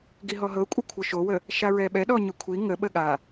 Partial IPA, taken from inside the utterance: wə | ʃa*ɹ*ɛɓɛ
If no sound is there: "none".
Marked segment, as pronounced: ɹ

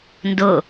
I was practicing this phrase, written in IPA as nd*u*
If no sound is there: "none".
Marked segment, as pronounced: o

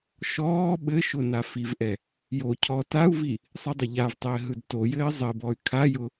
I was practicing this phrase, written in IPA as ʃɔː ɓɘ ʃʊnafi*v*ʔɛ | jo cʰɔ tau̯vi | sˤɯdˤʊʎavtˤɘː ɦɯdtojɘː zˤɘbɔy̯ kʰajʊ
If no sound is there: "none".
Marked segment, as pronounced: v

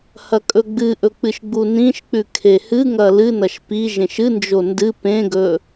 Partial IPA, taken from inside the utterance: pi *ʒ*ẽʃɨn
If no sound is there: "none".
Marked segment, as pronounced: ʒ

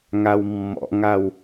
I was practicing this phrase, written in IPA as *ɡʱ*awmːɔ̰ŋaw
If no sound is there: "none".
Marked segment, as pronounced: ŋ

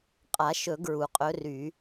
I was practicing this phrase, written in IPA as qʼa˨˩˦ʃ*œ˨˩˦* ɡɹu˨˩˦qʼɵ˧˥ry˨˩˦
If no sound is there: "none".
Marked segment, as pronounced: ɵ˨˩˦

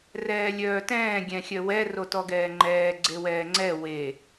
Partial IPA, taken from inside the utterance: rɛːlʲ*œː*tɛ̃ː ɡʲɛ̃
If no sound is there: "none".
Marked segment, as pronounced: œː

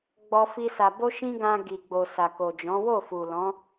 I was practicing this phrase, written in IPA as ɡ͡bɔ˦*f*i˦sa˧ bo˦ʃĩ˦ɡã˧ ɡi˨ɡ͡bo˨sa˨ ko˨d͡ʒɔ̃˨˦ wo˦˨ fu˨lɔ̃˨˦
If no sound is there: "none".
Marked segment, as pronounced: f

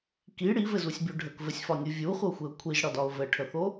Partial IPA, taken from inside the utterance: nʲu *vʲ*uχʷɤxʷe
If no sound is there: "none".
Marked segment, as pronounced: vʲ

